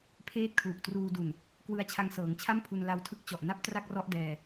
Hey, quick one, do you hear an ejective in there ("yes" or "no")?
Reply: no